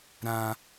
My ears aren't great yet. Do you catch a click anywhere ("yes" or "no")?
no